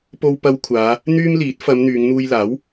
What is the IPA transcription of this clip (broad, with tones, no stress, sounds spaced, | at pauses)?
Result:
p o˧ w p ɐ˧ w kʷʰ aː˨˧ | n̪ yː˥ m l iː˨˥ t̚ f ɐ˨˧ m n̪ yː˨˧ ŋ n̪ uː˧ j l aː˨˥ w